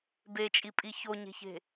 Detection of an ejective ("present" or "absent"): present